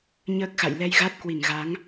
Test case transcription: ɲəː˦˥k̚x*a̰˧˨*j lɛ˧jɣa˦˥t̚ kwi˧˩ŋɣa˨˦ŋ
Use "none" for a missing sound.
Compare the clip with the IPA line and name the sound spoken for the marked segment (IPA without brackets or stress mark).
a̰˧˨